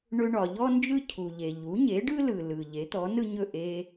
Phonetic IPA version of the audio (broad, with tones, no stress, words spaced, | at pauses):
ɳɵ˧ɳɒ˩ ʎɔ˥nd͡ʒɯ˥ cʰu˩ʎe˩ ʎu˩˥ɲe˩˥ ɖɯ˥lɯ˩lɯ˩ ʎe˩˥t̪ɔ˩˥nɯ˥ɲɵ˥˩ ʔe˧